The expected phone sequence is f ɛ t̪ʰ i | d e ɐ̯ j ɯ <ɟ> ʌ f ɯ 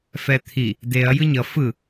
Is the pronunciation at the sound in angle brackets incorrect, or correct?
incorrect